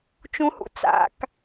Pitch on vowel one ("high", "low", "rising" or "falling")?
low